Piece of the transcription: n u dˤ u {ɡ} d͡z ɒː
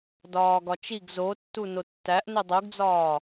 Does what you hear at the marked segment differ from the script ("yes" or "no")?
no